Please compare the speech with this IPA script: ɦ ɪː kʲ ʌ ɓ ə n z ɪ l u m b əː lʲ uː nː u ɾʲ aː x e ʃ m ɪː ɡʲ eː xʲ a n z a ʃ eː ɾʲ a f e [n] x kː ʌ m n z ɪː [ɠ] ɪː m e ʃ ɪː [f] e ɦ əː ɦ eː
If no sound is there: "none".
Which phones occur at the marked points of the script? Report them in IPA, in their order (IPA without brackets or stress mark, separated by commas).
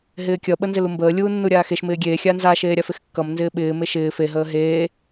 none, ɓ, f